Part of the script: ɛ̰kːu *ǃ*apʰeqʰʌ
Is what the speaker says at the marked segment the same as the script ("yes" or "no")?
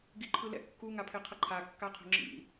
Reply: no